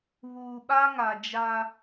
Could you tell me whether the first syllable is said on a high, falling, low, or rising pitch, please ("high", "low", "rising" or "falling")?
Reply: low